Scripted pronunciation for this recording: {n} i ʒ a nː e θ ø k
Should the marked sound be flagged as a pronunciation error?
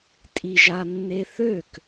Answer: yes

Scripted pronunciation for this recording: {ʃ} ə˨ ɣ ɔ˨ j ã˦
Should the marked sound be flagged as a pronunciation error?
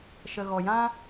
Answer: no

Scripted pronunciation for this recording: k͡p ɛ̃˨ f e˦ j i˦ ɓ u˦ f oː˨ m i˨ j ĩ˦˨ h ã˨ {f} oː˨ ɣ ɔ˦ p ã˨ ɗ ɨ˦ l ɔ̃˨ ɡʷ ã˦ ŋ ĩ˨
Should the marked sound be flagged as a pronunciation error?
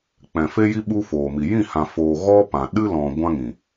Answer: no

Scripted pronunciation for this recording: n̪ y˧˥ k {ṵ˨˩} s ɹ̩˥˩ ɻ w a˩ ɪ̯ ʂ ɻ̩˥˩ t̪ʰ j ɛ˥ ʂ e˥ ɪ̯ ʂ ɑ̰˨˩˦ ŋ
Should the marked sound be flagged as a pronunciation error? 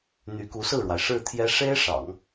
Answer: yes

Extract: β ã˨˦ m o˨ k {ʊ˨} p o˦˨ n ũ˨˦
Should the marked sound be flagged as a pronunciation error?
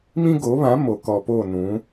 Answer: yes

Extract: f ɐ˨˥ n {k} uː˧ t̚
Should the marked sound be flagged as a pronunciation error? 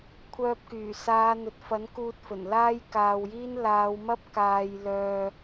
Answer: no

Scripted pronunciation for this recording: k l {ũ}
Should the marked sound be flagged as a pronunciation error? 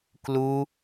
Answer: yes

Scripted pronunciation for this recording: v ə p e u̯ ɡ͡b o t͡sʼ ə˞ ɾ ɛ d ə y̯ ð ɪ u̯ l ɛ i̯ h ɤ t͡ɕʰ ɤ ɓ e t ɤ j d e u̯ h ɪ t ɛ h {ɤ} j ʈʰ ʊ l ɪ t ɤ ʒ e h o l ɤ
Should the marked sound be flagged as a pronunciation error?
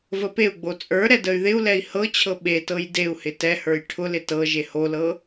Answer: yes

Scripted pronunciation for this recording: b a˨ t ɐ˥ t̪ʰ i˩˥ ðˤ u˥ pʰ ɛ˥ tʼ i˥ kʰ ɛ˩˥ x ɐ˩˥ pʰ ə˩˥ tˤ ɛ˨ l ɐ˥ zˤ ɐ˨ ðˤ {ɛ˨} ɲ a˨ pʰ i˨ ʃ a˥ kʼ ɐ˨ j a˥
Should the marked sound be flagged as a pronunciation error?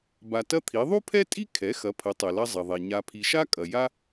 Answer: no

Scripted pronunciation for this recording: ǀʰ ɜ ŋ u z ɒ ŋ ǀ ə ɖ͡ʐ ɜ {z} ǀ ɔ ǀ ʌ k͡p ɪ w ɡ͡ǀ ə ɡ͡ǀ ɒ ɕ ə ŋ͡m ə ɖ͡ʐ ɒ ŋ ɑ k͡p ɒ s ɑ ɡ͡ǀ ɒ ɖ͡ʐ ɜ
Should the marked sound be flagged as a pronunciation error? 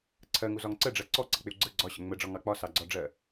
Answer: yes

